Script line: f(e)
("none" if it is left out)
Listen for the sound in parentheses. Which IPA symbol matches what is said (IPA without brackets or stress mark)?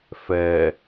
ɛ